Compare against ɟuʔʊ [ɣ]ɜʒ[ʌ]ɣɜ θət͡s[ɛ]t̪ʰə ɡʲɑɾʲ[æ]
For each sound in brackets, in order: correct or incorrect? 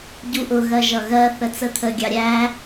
correct, correct, incorrect, correct

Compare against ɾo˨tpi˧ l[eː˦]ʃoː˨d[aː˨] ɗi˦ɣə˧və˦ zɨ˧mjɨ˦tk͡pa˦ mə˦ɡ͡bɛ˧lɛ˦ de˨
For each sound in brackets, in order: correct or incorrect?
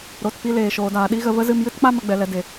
incorrect, correct

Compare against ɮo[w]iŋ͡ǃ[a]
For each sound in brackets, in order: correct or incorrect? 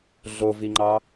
incorrect, incorrect

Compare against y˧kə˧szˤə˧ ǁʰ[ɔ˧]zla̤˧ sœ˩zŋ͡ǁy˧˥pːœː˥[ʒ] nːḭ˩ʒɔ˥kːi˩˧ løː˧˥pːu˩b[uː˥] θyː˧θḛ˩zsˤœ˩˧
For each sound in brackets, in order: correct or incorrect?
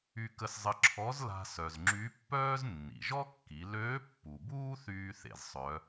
incorrect, incorrect, correct

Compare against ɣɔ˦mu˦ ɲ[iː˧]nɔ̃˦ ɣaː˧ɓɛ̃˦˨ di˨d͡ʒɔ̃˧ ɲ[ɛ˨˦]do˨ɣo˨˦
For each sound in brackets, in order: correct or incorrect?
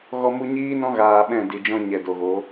incorrect, incorrect

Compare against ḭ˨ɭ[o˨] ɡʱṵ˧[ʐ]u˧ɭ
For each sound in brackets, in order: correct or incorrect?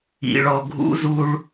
incorrect, incorrect

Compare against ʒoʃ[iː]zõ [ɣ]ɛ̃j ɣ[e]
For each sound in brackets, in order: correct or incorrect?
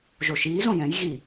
correct, incorrect, incorrect

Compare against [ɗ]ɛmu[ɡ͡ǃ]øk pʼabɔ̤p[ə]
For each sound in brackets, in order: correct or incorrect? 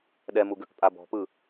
correct, incorrect, incorrect

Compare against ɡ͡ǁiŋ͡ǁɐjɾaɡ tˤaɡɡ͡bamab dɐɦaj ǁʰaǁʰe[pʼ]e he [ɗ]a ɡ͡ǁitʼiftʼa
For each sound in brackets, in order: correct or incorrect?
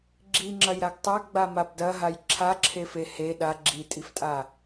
incorrect, correct

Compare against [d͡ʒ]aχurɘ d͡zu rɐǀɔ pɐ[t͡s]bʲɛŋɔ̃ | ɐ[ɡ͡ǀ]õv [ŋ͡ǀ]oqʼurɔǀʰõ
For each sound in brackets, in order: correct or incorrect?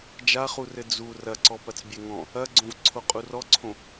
correct, correct, correct, incorrect

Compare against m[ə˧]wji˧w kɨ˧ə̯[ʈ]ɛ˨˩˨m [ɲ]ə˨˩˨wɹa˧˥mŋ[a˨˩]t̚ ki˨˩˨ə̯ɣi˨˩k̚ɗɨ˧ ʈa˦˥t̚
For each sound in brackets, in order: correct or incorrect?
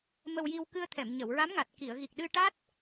correct, incorrect, correct, correct

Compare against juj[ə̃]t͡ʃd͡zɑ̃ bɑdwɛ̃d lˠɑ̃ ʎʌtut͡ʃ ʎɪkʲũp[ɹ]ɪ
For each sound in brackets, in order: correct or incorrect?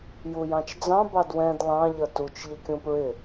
incorrect, correct

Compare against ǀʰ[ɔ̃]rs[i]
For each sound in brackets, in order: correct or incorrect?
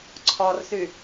incorrect, incorrect

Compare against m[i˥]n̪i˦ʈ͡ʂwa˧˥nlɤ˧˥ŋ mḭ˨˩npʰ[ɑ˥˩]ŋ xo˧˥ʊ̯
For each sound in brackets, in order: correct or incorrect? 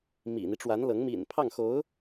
incorrect, correct

